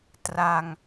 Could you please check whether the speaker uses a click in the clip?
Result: no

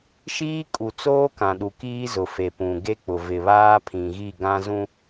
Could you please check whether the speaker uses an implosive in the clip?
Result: yes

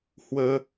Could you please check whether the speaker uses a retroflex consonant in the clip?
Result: no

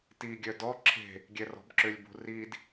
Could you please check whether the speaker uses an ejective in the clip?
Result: no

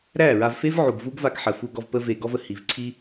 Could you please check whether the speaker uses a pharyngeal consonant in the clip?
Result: yes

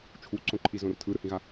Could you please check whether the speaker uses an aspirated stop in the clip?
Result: yes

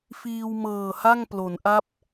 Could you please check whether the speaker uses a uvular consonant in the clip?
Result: no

